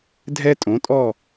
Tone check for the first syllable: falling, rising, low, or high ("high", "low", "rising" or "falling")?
high